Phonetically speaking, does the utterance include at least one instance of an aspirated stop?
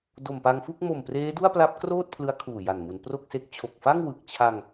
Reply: yes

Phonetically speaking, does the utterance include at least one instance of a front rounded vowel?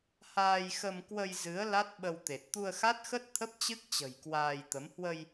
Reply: no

